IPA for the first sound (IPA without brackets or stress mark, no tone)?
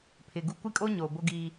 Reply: pʰ